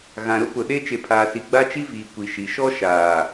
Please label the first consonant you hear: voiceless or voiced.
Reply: voiced